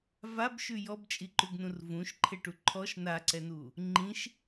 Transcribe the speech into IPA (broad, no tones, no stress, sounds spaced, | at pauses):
v a b ʃ ʉ j ɔ b t͡ʃʼ i ǃ ʉ ɡ n ũ r v ũ ʃ ǃʰ e ʈ u ǃʰ ɔ ʃ n a ǀ ɛ n u | ŋ͡ǃ ĩ ʃ